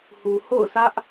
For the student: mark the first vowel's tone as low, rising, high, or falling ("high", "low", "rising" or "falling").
low